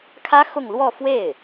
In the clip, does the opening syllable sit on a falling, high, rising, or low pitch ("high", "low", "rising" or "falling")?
high